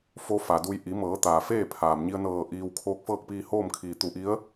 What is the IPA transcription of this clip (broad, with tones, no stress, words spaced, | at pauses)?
fo˧˥fa˩du˧j ʔi˩˧mɤː˩˧ t̪aː˩feː˥˨pʰaː˩mɲi˧ə̯ nɤː˧˩ ʔiː˧w kʰoː˧˥k̚fɤː˥˨k̚piː˧hoː˥˨m kʰiː˩t̪u˧˩ʔi˧˥ə̯